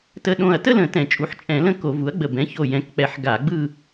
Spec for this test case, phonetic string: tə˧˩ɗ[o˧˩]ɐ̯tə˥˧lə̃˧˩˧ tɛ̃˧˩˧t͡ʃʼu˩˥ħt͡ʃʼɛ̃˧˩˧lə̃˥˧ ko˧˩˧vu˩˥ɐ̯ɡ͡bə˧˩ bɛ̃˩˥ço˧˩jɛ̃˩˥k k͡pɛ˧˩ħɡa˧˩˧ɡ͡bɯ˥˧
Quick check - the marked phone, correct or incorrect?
incorrect